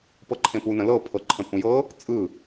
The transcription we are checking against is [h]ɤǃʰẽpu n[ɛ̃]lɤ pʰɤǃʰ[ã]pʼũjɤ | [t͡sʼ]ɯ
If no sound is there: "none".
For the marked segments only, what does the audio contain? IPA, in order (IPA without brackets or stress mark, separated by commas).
p, ə̃, ə̃, t͡sʼ